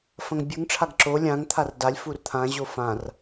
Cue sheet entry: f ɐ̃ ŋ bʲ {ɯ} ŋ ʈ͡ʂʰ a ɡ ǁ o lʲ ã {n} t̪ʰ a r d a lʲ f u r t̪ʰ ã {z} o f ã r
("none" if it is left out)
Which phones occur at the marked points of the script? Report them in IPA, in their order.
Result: ɯ, ŋ, ʑ

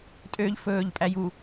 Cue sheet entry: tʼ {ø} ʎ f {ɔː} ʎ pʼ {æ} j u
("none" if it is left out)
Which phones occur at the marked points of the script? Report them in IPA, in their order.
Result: ø, ɵː, æ

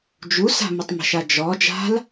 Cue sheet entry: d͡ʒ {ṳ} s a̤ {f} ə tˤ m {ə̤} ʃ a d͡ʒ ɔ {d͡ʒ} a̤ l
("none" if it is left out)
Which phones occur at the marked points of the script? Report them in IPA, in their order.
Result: u, m, ə̤, d͡ʒ

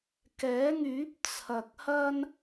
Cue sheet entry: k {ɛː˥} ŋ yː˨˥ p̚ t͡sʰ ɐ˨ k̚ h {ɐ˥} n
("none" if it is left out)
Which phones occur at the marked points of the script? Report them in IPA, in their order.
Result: ɛː˨˥, ɐ˥

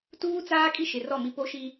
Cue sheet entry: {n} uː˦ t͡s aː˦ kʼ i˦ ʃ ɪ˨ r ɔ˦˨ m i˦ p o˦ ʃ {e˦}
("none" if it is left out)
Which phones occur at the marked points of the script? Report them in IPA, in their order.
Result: t, i˦

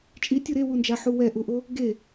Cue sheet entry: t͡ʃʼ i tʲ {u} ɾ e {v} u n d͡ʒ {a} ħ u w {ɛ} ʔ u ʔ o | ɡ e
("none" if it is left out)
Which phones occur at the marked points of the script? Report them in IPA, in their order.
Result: u, w, a, ɛ

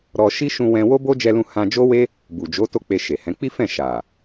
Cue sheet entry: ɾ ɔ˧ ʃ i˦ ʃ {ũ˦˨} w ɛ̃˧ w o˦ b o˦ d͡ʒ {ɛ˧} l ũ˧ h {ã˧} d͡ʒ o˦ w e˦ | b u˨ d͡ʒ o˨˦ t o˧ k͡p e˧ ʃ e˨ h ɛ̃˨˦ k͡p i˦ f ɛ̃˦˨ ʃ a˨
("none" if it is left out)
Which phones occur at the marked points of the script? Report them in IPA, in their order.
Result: ũ˧, ɛ˧, ã˧

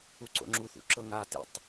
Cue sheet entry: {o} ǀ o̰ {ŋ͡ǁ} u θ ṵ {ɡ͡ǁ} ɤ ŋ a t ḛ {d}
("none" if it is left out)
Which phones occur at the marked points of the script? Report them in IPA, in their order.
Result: u, ŋ͡ǁ, ǁ, tˤ

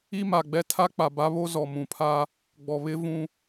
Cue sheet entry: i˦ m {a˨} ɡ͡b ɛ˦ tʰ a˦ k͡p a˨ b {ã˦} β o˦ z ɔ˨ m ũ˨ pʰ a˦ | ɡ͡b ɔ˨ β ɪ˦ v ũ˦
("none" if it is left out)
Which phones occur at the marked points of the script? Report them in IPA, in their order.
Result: a˨, a˦

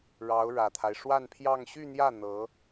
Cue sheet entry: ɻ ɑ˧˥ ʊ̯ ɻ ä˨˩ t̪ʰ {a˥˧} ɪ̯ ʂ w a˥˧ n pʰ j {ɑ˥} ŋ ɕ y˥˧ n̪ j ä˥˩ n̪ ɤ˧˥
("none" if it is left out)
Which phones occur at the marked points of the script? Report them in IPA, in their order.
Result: a˦, ɑ˥˧

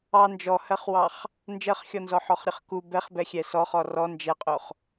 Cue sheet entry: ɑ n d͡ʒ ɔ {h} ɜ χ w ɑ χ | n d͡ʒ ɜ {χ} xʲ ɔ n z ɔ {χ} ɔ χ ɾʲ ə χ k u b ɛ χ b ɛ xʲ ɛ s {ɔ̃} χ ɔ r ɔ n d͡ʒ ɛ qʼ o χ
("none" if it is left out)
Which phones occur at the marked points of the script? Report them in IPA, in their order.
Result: h, χ, ħ, ɔ

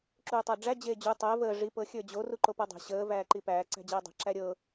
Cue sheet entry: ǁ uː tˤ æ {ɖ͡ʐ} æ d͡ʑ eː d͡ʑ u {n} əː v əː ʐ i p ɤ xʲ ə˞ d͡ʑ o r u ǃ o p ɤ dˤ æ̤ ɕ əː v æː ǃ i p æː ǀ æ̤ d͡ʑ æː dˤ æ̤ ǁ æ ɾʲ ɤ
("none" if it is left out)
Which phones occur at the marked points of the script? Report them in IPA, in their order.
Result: ɖ͡ʐ, tˤ

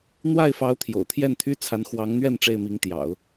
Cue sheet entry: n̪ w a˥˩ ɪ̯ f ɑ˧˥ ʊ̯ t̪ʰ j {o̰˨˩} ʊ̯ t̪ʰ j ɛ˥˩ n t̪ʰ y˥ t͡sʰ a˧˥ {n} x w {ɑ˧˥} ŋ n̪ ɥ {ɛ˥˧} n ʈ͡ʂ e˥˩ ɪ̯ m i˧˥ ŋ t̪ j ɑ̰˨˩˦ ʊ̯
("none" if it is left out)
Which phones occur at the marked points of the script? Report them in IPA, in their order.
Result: o̰˨˩, n, ɑ˧˥, ɛ˥˧

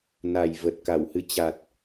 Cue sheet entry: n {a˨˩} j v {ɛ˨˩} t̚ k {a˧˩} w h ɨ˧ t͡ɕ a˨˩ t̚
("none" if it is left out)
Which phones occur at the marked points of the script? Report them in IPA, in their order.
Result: a˨˩, ə˨˩, a˧˩

